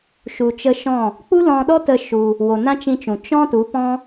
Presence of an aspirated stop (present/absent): absent